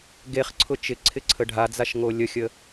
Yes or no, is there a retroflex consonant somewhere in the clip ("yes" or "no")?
yes